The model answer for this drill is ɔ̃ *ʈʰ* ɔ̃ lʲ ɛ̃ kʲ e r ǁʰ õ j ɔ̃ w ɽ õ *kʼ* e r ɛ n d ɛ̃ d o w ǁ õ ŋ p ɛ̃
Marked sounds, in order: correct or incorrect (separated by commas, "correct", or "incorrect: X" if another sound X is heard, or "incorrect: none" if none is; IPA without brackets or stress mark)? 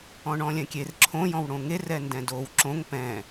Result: incorrect: ɳ, incorrect: ŋ